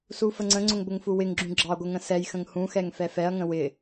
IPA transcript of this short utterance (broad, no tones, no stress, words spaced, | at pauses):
sufəŋ͡ǀə̃ŋ͡ǀʊŋ bʊŋfuwɪŋɡ͡ǁũ ɡ͡ǁɑɡʷɪ ŋə̃sɛjxə̃ŋ hũxɛŋ fɛfɛɐ̯ŋə̃ wɪ